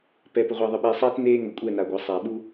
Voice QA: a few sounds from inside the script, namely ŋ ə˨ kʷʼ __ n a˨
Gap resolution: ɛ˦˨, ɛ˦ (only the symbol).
ɛ˦˨